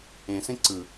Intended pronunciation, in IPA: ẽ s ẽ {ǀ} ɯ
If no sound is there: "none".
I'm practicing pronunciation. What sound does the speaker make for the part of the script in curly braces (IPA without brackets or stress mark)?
ǀ